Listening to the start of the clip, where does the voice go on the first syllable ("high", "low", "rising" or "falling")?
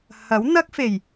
rising